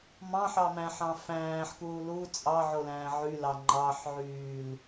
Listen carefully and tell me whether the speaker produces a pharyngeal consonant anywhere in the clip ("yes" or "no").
yes